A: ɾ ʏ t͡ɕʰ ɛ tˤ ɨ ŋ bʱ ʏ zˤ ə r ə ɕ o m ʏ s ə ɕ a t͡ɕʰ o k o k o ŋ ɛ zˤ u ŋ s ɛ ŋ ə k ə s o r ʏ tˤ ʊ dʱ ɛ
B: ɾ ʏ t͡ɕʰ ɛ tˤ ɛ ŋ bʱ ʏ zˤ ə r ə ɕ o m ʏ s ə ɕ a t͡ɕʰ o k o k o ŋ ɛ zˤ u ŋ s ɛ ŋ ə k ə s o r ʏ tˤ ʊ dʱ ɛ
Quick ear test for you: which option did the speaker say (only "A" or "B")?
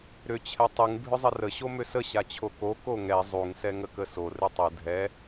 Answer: A